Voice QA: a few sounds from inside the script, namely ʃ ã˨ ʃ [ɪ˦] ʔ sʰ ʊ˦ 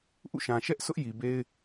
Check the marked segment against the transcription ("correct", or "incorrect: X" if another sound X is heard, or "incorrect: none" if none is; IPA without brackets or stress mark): incorrect: ɛ˦